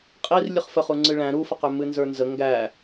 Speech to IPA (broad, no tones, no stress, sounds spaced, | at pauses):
qʼ i r lʲ ɨ χ f ə χ u ŋ͡ǀ ɨ ɭ æ̃ ɾ u f ə q ø m ɨ n z ə˞ n z ə ŋ ɡ æ